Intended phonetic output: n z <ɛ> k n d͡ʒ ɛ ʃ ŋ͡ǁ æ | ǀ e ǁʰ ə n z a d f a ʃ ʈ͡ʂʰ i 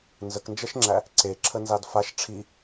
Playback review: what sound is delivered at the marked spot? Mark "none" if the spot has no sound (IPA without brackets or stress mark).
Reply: ə